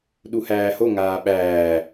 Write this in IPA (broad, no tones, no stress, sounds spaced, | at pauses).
ɗ u h æː h o ŋ aː ɓ æː